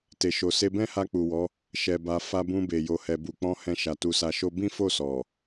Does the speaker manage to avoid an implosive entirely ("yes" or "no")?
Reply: yes